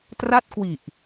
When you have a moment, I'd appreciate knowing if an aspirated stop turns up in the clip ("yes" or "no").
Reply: no